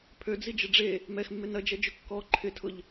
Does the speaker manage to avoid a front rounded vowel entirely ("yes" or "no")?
no